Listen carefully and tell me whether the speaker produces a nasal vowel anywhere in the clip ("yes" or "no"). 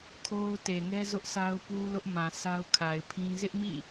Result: yes